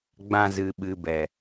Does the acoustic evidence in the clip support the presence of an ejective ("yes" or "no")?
no